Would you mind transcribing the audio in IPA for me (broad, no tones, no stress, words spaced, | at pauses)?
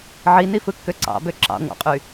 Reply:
ʕinifɯkːø ǀɑ̰bø ǁɑ̰ŋʷɑ̰qʼy